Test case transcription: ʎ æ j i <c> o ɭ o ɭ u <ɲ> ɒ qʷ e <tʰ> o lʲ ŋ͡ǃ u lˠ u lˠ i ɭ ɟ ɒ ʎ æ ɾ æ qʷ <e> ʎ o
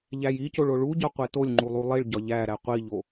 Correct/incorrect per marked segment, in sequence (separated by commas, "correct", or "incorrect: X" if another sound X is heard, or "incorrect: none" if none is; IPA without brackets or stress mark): correct, incorrect: ɟ, incorrect: t, incorrect: i